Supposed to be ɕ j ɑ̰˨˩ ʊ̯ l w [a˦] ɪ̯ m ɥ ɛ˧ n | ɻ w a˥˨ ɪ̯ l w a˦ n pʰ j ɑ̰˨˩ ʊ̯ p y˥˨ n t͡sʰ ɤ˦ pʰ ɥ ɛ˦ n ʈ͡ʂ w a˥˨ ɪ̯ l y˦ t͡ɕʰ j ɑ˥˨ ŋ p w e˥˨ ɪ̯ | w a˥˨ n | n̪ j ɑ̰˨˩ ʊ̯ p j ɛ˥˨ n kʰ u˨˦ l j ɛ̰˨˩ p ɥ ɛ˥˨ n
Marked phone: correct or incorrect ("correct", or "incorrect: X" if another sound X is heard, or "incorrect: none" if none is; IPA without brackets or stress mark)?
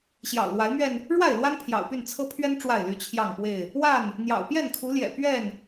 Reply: incorrect: a˨˦